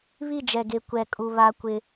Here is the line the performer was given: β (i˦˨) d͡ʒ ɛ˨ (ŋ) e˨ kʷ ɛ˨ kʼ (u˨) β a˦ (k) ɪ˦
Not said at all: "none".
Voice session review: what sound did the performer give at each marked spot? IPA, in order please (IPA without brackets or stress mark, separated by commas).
i˦˨, ɡ, u˨, kʷ